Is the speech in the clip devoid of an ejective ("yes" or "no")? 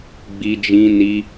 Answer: yes